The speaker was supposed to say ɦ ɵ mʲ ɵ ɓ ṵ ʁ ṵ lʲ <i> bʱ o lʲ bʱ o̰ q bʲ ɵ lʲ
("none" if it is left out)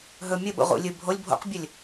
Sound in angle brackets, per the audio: ɨ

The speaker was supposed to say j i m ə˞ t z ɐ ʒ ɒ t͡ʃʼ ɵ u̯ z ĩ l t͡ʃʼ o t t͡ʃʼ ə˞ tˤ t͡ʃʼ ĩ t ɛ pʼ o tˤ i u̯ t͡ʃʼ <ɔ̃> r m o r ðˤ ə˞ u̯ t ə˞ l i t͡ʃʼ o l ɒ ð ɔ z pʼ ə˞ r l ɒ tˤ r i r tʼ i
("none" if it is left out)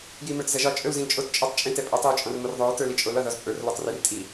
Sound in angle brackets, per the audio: ɔ̃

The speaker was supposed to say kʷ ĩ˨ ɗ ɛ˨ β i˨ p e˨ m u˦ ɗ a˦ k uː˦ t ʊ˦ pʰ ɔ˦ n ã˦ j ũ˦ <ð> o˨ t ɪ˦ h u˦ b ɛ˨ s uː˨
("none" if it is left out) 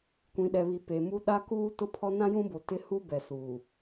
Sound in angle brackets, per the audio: b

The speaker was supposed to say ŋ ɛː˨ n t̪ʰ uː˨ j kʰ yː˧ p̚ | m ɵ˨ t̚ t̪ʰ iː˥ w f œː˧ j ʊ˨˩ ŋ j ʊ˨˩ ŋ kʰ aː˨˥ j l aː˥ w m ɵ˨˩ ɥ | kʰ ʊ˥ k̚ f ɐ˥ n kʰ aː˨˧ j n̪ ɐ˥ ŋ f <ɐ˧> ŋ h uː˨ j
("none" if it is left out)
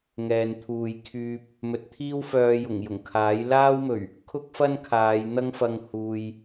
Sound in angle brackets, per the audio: ɐ˧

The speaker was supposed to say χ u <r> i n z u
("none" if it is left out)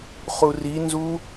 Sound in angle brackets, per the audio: r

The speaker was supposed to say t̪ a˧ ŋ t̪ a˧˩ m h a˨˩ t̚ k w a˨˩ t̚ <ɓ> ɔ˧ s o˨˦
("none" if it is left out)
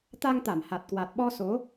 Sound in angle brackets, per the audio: ɓ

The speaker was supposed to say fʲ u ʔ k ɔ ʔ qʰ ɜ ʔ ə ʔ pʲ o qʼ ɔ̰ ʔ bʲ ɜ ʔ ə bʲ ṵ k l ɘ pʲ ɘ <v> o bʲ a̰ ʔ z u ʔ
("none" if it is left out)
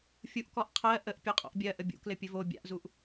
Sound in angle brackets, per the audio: v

